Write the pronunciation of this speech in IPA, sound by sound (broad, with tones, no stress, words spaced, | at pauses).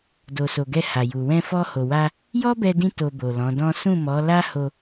do˨so˨ɡɛ˧ ha˨ju˨ wɛ̃˧fɔ˧ho˨wa˧ | jɔ˦bɛ˧dĩ˧ to˧bo˨lɔ̃˨˦dɔ̃˦ sũ˦˨mɔ˨˦ la˦ho˧